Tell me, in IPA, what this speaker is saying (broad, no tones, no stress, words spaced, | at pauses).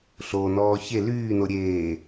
ɬonɔː çe lyːno ɾʲeː